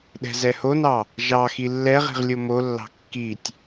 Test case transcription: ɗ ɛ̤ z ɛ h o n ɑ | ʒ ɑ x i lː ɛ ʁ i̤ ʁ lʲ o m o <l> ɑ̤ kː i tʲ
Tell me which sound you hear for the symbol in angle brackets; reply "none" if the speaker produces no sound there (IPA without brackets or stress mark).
lː